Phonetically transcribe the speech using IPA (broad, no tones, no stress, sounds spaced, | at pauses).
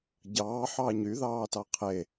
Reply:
ɟ ɑː ħ ɑ ɲ y ð ɑː t ɑ qʰ e